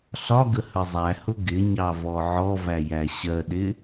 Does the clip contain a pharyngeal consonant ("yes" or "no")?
yes